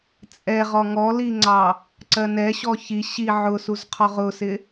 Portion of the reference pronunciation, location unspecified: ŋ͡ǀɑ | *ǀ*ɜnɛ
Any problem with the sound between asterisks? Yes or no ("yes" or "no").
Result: no